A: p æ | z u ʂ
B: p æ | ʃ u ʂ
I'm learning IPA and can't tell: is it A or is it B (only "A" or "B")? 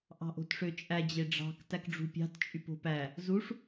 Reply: A